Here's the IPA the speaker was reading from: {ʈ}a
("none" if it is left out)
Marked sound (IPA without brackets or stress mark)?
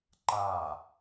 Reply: ǃ